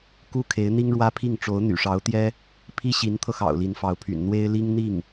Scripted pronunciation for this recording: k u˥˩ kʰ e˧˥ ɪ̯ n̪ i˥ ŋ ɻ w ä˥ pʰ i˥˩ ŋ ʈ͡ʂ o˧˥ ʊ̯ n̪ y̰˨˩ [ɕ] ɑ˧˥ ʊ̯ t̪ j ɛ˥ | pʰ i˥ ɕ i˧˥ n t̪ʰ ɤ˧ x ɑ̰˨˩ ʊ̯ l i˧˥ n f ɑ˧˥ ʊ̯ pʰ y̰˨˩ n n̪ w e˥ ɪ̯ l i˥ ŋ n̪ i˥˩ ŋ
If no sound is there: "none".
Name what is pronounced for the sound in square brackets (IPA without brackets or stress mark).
ʂ